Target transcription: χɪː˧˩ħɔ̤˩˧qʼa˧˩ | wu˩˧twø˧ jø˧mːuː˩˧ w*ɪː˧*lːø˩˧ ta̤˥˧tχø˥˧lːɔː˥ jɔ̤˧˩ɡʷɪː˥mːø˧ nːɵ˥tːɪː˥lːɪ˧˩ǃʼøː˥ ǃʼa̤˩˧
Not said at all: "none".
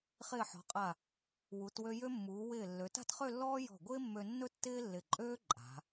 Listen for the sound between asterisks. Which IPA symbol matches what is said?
ɪː˧˩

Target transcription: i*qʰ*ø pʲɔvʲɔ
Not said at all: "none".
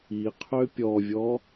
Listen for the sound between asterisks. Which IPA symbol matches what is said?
qʰ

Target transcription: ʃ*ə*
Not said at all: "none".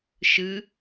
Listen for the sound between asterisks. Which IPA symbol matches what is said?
ɨ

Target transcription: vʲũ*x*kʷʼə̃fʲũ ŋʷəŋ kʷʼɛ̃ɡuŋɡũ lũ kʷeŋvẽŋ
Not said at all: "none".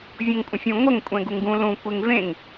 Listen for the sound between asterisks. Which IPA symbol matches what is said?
ŋ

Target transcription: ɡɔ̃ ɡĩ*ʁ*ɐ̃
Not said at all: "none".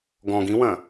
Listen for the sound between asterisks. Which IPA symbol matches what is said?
w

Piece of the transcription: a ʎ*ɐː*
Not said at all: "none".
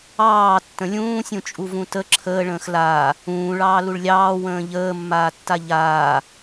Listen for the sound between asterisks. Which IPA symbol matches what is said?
aː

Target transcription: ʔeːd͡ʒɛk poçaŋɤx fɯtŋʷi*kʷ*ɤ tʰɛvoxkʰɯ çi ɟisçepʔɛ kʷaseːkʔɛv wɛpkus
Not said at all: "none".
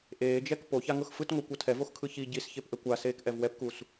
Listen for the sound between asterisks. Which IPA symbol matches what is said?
kʷ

